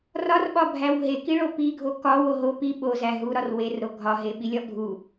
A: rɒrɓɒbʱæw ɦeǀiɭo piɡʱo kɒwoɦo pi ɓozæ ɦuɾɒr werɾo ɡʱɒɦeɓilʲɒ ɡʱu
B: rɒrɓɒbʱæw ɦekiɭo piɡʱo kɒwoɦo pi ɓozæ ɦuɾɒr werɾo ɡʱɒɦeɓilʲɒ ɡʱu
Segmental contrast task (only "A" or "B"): B